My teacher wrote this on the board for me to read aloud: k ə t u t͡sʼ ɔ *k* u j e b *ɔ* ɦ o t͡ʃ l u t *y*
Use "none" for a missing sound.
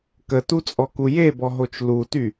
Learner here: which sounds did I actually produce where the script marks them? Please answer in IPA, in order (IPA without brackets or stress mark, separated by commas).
k, ɔ, y